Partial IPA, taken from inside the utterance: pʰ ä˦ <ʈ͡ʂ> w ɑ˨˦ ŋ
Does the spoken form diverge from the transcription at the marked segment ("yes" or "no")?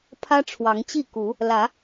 yes